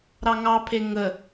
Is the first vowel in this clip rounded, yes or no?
no